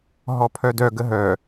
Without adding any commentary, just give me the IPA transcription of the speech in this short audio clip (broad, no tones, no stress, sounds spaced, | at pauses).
ɦ ɔ pʰ œ d œ ɡ ə ɦ œ